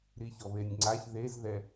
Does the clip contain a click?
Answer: yes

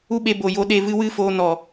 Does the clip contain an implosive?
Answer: yes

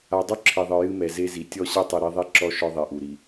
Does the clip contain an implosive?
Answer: no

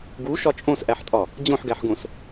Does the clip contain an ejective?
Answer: yes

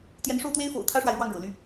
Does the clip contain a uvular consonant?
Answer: no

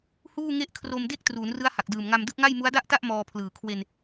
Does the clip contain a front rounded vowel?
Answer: no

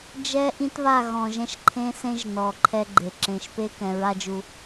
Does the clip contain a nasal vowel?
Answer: yes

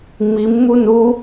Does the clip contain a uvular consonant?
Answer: no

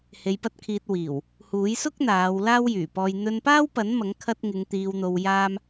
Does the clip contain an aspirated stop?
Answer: yes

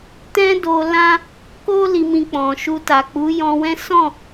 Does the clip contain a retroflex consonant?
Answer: no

